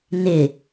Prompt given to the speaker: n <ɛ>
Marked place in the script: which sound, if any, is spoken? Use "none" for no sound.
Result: ɪ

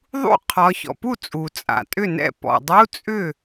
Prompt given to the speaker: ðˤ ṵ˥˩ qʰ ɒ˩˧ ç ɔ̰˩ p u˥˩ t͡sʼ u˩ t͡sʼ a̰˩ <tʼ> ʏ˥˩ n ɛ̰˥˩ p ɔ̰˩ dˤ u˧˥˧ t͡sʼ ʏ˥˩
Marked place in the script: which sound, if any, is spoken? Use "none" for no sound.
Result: tʼ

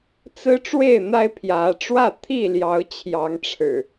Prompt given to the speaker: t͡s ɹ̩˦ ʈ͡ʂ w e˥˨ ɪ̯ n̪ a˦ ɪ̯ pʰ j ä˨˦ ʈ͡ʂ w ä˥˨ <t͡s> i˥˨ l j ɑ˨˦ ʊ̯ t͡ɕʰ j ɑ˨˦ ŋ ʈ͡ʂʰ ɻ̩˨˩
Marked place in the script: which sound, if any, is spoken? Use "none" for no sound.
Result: t̪ʰ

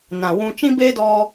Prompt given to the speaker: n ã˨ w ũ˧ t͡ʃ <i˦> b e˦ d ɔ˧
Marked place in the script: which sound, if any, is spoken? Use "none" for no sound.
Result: ĩ˦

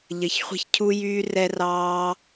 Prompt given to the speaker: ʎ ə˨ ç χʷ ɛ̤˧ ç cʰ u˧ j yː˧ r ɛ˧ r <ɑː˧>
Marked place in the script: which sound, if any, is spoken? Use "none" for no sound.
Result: ɑː˧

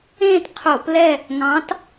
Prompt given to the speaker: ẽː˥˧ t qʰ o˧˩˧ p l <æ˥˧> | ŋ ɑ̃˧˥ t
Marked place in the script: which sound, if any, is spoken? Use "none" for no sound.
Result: ɛ˥˧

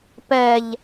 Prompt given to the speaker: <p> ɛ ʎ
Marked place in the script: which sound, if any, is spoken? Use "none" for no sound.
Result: p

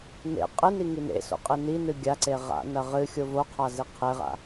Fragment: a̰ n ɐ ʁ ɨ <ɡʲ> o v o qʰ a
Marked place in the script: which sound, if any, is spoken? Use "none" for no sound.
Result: xʲ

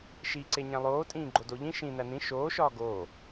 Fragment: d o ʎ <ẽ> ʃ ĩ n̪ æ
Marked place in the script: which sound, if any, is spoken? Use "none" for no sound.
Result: ĩ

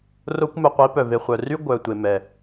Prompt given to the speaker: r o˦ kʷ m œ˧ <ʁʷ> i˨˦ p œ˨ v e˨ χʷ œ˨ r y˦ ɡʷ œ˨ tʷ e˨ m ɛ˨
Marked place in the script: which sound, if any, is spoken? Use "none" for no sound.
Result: qʷ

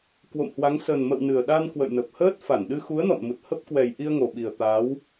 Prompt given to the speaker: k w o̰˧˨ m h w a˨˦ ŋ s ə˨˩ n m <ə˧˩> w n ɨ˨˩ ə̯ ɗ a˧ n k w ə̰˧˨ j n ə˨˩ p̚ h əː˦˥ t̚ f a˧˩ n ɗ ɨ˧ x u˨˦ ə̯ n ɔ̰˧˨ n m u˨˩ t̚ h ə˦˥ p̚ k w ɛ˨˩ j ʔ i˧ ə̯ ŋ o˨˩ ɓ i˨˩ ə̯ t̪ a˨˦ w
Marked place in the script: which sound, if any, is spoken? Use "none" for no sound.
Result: ə̰˧˨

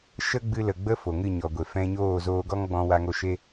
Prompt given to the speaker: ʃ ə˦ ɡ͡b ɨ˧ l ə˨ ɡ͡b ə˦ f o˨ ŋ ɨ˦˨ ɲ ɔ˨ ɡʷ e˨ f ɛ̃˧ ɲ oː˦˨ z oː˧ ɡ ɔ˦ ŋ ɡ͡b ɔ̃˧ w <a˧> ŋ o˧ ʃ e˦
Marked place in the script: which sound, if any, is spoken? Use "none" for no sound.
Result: a˧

